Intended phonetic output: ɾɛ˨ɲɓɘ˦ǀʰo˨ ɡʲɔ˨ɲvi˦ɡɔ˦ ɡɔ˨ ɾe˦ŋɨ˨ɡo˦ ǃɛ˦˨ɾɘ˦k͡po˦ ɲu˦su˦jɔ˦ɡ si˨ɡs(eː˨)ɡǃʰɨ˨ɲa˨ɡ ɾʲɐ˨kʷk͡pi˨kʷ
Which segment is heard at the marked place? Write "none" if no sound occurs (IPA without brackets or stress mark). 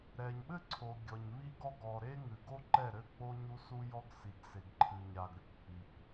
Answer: e˨